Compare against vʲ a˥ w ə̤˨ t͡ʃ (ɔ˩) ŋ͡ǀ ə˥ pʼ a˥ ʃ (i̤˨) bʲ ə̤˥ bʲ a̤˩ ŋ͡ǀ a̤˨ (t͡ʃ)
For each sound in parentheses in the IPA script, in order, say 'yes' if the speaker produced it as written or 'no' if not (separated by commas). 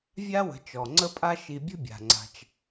yes, no, yes